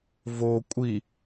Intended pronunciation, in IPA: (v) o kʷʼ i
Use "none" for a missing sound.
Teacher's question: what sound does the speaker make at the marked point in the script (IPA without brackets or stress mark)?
v